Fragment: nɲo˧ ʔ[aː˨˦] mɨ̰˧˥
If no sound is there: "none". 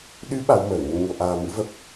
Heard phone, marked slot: aː˧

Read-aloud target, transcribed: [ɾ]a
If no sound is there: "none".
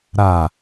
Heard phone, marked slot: ɾ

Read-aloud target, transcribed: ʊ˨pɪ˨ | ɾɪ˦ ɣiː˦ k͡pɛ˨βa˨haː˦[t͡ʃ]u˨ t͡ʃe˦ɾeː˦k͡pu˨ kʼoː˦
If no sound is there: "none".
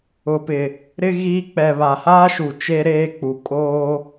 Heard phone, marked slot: ʃ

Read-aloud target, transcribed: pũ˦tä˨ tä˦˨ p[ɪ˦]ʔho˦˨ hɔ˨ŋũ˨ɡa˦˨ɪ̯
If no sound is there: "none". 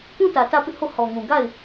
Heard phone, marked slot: ɪ˦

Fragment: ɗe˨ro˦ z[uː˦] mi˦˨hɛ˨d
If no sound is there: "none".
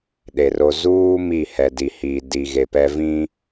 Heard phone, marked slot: uː˦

